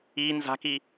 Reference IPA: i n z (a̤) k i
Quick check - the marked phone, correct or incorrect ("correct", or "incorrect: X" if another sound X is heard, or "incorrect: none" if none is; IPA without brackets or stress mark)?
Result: correct